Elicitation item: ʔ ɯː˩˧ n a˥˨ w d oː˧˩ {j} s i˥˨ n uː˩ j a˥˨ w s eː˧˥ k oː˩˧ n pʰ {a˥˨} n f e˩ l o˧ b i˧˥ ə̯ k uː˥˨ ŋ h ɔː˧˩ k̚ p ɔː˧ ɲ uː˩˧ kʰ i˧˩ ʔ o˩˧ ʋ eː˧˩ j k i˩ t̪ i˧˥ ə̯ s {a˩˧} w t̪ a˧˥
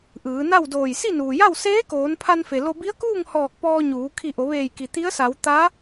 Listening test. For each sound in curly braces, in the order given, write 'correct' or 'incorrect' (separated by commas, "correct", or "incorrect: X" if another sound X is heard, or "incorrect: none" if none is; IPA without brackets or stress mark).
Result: correct, incorrect: a˧, correct